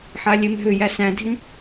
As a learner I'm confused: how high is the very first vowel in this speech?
low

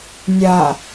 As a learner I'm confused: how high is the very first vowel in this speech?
low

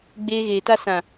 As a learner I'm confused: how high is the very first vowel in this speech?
mid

